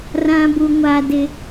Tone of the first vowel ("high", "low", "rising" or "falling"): low